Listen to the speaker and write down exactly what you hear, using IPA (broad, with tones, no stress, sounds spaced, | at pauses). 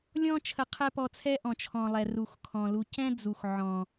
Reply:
lʲ ɔ̃˦ t͡ʃʰ ə˧ qʰ ɛ˦ p ɔ˧ t͡sʰ ɛ˦ ʔ ɔ̃˨ t͡ʃʰ ɔ̃˨ lˠ ɛ˨ r u˨ x kʰ ɔ̃˨ l u˧ c ɛ̃˦ d͡z u˨ x ʕ ɔ̃˨